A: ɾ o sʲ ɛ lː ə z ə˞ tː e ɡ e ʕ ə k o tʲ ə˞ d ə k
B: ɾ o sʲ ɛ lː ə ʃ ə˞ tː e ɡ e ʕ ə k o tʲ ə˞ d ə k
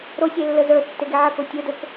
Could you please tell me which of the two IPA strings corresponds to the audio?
A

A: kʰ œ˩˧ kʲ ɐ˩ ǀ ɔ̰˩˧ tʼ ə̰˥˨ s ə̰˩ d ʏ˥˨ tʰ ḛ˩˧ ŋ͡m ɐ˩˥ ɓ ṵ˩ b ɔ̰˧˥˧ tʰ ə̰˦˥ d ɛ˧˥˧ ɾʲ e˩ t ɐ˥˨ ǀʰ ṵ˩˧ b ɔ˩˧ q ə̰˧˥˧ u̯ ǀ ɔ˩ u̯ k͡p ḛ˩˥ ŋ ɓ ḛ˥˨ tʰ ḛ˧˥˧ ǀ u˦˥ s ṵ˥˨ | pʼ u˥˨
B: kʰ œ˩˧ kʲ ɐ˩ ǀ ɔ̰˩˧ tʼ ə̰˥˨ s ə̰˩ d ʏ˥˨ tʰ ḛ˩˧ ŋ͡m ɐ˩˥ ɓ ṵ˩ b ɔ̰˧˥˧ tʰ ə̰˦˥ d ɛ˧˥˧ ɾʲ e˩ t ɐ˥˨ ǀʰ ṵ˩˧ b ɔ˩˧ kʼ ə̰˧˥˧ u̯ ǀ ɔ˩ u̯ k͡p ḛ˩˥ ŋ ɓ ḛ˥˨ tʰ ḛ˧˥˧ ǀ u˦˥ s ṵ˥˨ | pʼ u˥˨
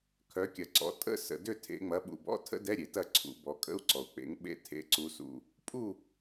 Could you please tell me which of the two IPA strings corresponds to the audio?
B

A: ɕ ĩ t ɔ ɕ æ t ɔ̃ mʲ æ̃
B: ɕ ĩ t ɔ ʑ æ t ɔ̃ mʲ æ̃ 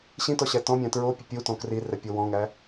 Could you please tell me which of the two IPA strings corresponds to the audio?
A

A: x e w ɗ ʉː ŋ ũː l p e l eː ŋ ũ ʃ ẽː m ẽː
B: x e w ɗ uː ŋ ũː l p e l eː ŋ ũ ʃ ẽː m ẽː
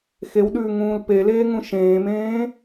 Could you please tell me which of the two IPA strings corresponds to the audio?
A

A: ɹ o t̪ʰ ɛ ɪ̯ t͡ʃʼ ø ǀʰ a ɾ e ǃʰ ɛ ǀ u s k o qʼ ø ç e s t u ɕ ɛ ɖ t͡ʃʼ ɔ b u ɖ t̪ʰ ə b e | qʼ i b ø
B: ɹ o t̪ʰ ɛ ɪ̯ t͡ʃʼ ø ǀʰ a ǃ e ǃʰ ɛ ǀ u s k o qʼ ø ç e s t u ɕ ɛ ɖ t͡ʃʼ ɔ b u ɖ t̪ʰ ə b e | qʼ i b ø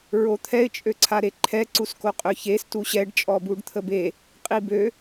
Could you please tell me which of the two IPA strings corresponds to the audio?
A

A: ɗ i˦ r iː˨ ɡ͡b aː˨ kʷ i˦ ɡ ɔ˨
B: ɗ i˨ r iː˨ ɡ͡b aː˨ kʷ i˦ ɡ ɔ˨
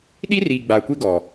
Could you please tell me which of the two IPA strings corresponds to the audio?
A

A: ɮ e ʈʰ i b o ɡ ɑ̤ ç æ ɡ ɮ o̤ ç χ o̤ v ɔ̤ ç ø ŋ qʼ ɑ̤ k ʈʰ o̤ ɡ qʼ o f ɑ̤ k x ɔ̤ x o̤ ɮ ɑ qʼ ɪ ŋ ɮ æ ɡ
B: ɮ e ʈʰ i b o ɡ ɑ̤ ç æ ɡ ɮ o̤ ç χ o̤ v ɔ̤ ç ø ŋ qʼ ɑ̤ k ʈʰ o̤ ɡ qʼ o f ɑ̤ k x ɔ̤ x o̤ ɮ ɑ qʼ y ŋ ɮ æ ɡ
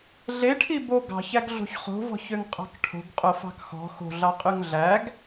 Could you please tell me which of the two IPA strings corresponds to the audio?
B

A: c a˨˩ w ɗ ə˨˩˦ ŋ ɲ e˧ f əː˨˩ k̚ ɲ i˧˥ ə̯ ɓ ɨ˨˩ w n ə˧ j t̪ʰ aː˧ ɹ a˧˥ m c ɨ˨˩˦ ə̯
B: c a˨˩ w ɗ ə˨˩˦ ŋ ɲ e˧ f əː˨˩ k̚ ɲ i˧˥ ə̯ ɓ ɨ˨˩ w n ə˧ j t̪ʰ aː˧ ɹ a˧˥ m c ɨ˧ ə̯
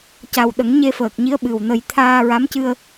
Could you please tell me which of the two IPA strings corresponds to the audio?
B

